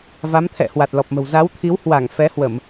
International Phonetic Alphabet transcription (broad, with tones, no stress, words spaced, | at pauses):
va˨˦mt̪ʰɛ̰˧˨ hwa˨˩t̚lɔ˨˩p̚mə̤˨˩w za˨˦wt̪ʰi˨˦whwa˧˩ŋ fɛ˨˦hwə˧˩˨m